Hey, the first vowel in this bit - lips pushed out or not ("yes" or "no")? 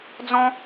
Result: yes